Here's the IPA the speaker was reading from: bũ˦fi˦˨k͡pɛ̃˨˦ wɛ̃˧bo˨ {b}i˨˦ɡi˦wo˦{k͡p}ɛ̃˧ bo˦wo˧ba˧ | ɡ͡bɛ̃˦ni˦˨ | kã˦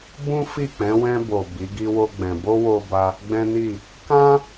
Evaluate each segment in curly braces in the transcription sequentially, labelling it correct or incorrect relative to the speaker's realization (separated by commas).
correct, incorrect